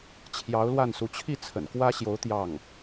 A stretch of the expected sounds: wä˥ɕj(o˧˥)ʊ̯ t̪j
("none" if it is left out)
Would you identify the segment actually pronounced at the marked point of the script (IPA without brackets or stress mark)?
o˧˥